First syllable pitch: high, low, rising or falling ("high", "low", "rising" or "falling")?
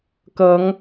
rising